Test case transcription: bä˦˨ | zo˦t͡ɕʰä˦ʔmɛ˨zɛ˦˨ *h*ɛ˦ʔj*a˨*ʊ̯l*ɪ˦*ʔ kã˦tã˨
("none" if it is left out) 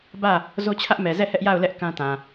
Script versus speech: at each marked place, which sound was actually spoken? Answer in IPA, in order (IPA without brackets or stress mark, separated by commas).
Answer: h, a˦˨, ɛ˦